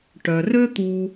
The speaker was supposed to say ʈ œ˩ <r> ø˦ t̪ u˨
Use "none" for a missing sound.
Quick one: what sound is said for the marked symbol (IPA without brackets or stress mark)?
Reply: r